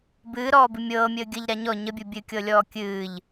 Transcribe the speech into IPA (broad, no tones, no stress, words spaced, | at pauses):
bɨːɾɔːbɨ mʲɤːmʲəː ɡʲəʎɾa ɲɔ ɲəbʲu bʲɨkʲɤlʲɔː kʲɨːʎ